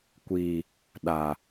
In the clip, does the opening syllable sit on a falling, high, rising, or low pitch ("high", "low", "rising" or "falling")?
low